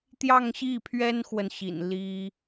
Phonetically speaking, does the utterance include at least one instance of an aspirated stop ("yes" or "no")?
yes